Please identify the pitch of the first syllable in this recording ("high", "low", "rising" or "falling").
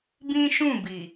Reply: high